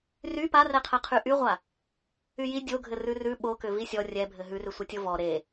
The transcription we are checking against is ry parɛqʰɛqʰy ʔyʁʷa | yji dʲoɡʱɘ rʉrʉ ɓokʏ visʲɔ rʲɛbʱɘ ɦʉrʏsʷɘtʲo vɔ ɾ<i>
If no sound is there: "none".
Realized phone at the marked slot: e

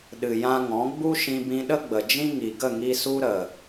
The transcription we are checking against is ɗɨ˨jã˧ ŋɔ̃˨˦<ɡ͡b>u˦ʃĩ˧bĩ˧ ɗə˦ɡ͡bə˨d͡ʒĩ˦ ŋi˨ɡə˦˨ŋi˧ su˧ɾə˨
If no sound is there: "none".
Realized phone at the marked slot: ɡ͡b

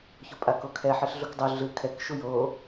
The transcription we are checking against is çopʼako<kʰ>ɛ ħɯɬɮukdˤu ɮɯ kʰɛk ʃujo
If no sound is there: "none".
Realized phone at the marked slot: kʰ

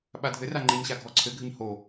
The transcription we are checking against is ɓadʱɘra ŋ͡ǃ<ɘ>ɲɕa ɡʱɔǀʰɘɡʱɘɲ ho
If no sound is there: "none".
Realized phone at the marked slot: ɘ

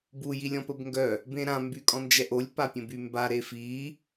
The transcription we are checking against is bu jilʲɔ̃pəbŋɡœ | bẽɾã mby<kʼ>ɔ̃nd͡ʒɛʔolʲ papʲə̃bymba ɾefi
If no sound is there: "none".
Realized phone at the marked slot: kʼ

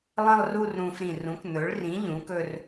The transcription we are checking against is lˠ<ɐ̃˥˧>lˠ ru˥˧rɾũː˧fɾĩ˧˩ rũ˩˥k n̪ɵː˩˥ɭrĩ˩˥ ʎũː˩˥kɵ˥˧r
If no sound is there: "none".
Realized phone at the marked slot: ɐ̃˥˧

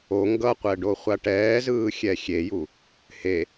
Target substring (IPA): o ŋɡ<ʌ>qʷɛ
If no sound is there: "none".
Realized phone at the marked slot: ʌ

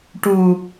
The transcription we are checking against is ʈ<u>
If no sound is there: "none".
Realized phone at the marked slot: u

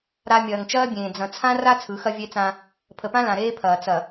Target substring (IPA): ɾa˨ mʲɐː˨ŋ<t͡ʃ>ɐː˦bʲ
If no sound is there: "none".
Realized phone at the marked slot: t͡ʃ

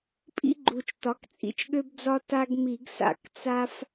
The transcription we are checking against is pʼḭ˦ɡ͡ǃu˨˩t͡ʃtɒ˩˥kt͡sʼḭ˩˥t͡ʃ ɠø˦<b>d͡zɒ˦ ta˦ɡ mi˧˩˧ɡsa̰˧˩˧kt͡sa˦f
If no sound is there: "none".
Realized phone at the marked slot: b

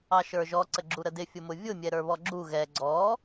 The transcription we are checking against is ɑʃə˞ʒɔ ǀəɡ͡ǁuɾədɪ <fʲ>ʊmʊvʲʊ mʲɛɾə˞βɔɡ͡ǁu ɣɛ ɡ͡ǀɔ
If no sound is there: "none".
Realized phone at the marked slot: fʲ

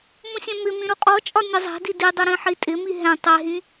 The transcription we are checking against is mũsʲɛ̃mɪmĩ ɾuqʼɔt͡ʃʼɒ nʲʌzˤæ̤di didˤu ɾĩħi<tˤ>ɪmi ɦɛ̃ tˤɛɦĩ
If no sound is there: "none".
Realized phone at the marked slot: tʼ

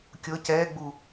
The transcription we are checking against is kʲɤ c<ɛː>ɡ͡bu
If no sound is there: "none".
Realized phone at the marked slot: ɛː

